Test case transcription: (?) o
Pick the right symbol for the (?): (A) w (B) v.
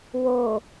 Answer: A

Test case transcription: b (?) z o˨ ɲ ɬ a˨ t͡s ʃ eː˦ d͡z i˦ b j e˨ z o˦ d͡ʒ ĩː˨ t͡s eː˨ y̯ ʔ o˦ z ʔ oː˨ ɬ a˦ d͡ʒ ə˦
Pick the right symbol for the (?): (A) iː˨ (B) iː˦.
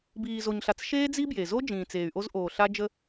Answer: A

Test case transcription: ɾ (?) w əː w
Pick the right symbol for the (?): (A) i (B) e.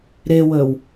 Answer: B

